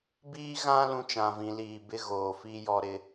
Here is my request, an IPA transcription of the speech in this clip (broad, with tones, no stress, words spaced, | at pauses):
biː˦ɣã˦ lũ˦t͡ʃã˨vĩ˨ liː˨bɪ˦ɣoː˨ fiː˦jɔ˦ɾɪ˦